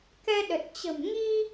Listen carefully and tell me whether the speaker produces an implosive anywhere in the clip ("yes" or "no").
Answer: yes